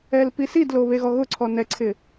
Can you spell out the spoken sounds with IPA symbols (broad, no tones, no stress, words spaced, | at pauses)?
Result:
ɛlpisidlo βeɣɔɣʊǀʰɔ nɛǀʰɪ